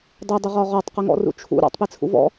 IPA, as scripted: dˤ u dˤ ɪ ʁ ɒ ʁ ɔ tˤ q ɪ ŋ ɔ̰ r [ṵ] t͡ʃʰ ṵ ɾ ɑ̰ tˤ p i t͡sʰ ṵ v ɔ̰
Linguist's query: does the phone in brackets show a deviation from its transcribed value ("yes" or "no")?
no